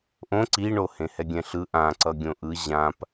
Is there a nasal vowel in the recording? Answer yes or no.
yes